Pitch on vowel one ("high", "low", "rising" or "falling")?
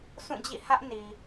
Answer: falling